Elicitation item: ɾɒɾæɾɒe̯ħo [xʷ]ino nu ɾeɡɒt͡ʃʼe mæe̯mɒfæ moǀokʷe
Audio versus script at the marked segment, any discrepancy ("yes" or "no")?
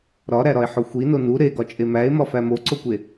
no